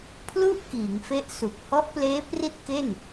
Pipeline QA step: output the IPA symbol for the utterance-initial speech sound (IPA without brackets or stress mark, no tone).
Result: pʰ